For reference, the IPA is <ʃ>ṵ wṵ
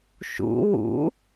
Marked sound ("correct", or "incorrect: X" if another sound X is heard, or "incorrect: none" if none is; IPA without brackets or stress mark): correct